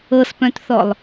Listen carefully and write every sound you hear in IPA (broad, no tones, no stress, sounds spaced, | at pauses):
ɤ s p œ̃ t θ ɔ lˠ